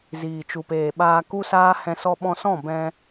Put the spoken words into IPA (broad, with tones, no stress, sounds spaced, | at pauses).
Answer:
z iː˨ t͡ʃ u˨ p eː˨ ɓ aː˧ k u˦ s aː˦ h ɛ̃˧ s ɔ˧ ɓ ɔ̃˧ s ɔ̃˦˨ b ɛ̃˧